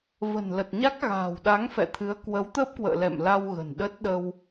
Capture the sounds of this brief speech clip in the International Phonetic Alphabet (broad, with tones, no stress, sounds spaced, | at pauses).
v ə̤˨˩ n l ə˨˩ t̚ ɲ a˦˥ k̚ ɣ a̤ː˨˩ w ɗ a˨˦ ŋ f ɛ̰˧˨ t̪ʰ ɨ˨˦ ə̯ k w ə˨˦ w t̪ əː˦˥ p̚ k w ə̰ː˧˨ l ɛ̰˧˨ m l a˧ w ɣ ə̤˨˩ n ɗ ə˦˥ t̚ ɗ ə˧ w